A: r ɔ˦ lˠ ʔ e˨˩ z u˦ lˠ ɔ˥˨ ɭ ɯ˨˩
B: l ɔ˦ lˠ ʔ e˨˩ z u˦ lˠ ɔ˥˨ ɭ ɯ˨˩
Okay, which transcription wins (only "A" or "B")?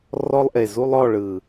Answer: A